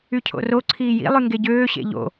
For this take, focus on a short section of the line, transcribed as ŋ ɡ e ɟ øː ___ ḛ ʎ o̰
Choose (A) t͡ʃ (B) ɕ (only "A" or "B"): B